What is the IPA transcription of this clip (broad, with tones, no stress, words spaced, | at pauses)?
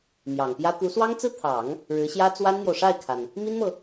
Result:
mjɑ˨˩ŋpjä˥ t̪u˧˥swɑ˥ŋt͡sɹ̩˥t̪ʰɑ˨˩˦ŋ | ɻɻ̩˧˥ɕjä˥t͡swa˥nn̪jo˨ʊ̯ ʂa˥˩ɪ̯kʰa˩n | mi˥nmɤ˨